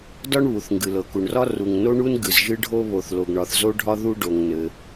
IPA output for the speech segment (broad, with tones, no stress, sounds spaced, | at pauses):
d ɒ˥ ɳ β u˩ θ ŋ ɡ ɨ˩ l ɤ˩ k u˩ ɳ r ɒ˥ r u˩ ŋ n o˥ ɳ u˥ n ɡ ɨ˩ z ʒ ɨ˥ ɖʱ o˥ β o˩ θ l o˩ ɡ ɳ ɒ˩ θ z o˥ ɖʱ ɒ˥ ð u˥ ɖ o˩ ŋ n ɘ˩